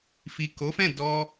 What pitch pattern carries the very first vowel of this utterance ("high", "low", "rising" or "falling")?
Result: low